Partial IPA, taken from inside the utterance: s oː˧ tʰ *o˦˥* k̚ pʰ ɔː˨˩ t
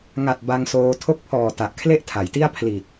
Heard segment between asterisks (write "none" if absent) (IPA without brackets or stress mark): o˦˥